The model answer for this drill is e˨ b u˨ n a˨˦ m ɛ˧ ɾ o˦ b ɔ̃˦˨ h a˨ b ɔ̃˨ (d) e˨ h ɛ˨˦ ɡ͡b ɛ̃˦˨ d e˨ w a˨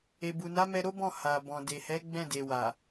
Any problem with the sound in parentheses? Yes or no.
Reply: no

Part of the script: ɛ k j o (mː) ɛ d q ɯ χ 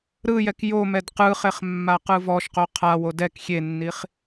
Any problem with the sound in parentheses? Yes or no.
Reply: yes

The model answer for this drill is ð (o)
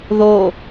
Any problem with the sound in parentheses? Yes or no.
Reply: no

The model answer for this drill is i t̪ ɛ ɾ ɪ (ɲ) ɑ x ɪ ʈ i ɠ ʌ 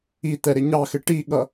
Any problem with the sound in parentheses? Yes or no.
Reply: no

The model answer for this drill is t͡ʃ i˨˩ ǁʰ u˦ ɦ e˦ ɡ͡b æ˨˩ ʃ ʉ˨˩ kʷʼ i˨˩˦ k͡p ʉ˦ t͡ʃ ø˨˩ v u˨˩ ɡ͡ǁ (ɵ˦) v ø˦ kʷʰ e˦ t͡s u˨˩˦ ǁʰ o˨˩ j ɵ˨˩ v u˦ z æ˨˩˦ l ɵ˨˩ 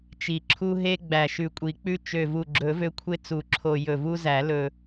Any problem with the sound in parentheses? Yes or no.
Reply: yes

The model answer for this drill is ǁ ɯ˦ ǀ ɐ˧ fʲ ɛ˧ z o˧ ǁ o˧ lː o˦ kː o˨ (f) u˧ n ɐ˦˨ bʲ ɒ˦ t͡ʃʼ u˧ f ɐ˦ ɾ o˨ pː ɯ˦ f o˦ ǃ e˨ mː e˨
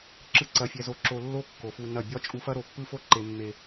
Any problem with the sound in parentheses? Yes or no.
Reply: no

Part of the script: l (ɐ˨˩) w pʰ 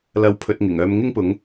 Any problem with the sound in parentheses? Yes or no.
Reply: yes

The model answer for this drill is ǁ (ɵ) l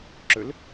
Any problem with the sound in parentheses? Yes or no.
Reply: no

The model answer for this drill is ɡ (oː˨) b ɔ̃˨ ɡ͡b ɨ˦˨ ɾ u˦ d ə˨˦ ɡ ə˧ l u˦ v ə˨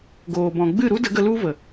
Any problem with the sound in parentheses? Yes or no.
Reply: no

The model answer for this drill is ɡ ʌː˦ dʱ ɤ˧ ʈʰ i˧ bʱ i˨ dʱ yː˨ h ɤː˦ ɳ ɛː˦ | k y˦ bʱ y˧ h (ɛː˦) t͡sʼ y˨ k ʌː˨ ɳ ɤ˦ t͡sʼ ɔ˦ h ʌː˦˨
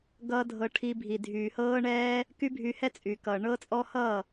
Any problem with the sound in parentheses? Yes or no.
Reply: yes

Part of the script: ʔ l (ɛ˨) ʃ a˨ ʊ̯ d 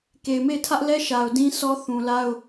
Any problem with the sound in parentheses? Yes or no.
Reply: yes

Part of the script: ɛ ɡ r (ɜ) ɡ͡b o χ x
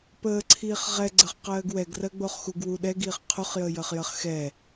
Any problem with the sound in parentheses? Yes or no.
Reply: no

